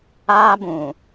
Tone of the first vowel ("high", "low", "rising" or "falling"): high